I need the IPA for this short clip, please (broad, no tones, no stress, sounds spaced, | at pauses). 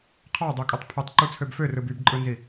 qʰ ɑ dˤ y kʼ ɯ tˤ pʰ ɯ tˤ ǃ u t͡sʰ ø b f ø r ɯ b y b ǃʼ ɯ n z i